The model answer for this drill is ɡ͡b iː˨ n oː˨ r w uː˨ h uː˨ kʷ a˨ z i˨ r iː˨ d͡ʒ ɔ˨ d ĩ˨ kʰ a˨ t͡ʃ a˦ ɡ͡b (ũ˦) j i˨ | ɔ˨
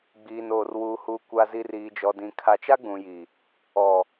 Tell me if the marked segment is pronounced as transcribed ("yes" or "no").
no